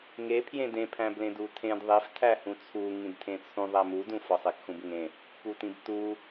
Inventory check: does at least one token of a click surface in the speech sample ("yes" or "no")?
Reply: no